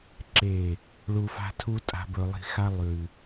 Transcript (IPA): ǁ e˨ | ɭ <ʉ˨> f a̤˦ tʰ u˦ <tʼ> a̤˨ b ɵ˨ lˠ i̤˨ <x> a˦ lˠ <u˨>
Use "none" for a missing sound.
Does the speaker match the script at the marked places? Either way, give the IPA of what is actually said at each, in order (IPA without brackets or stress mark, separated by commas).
u˨, tʼ, x, ʉ˨